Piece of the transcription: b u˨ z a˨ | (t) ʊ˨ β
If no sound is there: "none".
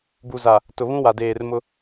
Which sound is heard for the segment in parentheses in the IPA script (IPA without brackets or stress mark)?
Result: t